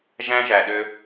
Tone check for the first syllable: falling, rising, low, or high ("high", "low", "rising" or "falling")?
high